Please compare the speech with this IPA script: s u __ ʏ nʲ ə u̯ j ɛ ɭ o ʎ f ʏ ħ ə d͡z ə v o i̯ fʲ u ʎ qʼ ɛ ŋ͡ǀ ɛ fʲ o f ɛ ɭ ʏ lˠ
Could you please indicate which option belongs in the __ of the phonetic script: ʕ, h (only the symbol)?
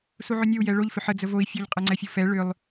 ʕ